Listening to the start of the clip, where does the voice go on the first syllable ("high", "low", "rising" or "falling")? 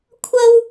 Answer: high